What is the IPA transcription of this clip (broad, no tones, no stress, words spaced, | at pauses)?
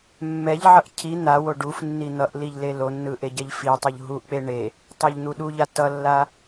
mːɛʎʕʌʔ cʰi n̪awo ɖufnːi n̪ʌʔliʎ lelonːɯ ʔeɟɛʎfitˤuʎ ɦuʔk͡pe ɳe | tˤɛʎn̪uɗuʎa tʌlːa